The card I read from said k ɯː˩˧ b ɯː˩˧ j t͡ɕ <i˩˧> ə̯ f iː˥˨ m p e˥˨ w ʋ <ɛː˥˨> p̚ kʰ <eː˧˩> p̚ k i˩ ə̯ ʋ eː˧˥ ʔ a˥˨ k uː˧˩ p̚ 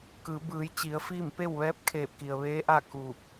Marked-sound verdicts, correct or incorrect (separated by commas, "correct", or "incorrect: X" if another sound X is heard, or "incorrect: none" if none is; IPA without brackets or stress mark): correct, incorrect: ɛː˧˥, correct